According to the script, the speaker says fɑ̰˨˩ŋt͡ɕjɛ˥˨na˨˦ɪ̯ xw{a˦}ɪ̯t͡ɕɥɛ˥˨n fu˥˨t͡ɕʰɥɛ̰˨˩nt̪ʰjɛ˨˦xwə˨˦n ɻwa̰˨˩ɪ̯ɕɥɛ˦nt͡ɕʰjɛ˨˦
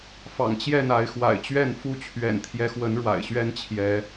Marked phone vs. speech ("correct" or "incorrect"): incorrect